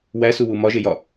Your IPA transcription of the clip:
w æ s u w u m ɒ ʒ e j ɒ

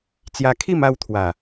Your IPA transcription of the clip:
t͡s j a˧ kʰ i˥˧ m a˥˧ w t̪ʰ w a˨˩

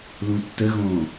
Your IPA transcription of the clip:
l ũ tː ə ɣ õː

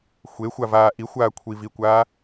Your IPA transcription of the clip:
xʷ e xʷ a v aː ʔ i xʷ aː kʷʰ i v i kʷ aː

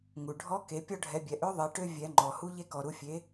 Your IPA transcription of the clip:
ŋ u˩ ɖʱ ɔ˧˥ k e˩˧ pʲ ɔ˧ ɖʱ ɛ˩˧ bʲ ɛ˩ ʔ ø˧˥ ðˤ ɛ˩˧ ʈ ø˧ vʲ ɛ˩˧ ŋ͡ǃ ɔ˩ h u˧ ʎ e˧ k ɔ˩ ɾ u˩˧ fʲ e˩˧

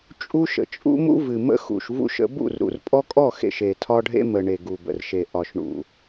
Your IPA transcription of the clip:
t͡ʃʼ u˦ ʃ ə̰˨ t͡ʃʼ ṵ˦ m ṵ˦ v ɨ˨ m ə̰˦ x ṵ˨ ʃ v ṵ˦ ʃ ə̰˨˦ b ṵ˦˨ r ɾ ṵ˨ r pʼ ɔ˦ kʼ ɔ˦˨ x ḛ˨ ʃ e˨ tʰ ɒ˦ ɖʱ ḛ˦ m ə˨ ɳ e˨ ɡ u˨ b ə̰˨ r ʃ e˨ ʔ ɒ˨ ʃ ɳ ṵ˨

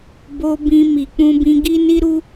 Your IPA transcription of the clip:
b o˧ b ĩ˧ m i˨ k͡p ũ˧ b ĩ˧ ɡ i˦ n i˦ ɾ u˦

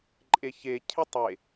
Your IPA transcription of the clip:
ǃʼ e ç e cʰ ɪ tˤ e

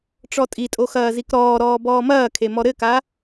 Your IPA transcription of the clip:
ʈ͡ʂ ɔ tʼ i tʼ o x ɐː z i k ɾ ɔː ɾ ɔː b ɔː m ɐː kʰ e m ɔ ɾ ɘ k a

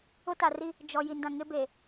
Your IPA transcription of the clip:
ʊ˦ t a˨ r i˦ | d͡ʒ ɔ˨ j i˨ n d ã˨ ŋ ɪ˦ b e˨

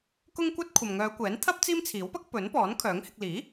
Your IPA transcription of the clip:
k ʊ˥ ŋ kʷ ɐ˥ t̚ kʷʰ ɐ˨ m ŋ œː˨˧ kʷ ɛː˨˥ n t̪ʰ ɐ˥ p̚ t͡s iː˥ m t͡sʰ iː˨˥ w p ɐ˥ k̚ p ɵ˨˥ n p ɔː˨˥ n kʰ œː˨˥ ŋ h ɪ˧ k̚ l iː˨˥

